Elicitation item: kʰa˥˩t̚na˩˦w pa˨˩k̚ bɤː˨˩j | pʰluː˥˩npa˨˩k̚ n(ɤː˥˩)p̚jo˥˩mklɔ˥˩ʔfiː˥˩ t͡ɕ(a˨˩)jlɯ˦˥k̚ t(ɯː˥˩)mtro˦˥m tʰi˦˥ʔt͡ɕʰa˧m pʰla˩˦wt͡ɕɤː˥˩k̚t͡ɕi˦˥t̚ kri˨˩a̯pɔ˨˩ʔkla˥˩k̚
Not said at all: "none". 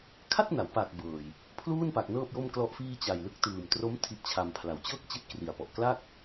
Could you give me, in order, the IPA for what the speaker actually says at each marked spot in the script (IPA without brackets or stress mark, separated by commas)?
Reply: ɤː˥˩, a˨˩, ɯː˨˩